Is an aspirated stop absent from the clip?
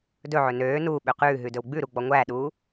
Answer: yes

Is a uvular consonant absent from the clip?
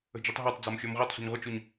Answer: no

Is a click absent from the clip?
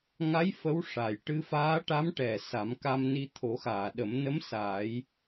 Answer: yes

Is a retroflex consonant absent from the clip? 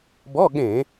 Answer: yes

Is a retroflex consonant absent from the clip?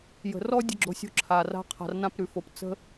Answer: yes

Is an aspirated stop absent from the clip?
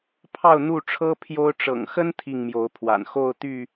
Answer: no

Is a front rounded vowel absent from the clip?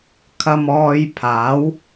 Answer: yes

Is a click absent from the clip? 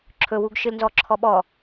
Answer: no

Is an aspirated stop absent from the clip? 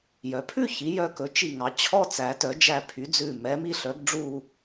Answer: no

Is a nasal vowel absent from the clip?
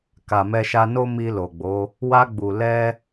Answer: yes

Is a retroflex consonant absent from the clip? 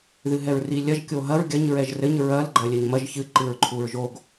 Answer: yes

